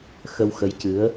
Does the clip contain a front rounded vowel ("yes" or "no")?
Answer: no